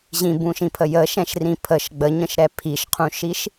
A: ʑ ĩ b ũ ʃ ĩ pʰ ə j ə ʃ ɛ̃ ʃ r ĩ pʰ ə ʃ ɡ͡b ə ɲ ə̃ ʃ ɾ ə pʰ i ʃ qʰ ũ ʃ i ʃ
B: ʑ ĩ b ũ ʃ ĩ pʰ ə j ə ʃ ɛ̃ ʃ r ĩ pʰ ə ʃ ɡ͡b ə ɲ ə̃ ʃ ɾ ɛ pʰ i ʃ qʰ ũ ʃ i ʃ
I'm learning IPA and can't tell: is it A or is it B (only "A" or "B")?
B